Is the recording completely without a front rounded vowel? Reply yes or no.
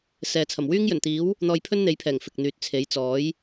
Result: no